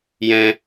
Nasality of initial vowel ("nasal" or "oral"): nasal